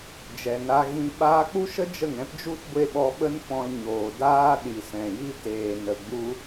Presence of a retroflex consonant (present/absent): absent